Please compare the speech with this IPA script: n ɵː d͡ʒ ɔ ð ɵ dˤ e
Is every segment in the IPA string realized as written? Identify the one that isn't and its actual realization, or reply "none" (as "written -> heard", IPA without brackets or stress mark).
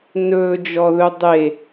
none